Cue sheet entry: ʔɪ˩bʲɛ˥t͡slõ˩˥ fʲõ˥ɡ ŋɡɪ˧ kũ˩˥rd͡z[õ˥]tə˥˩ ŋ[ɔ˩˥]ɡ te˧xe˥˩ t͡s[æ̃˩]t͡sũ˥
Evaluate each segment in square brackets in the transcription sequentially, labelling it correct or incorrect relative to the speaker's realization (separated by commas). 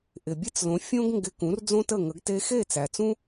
correct, incorrect, incorrect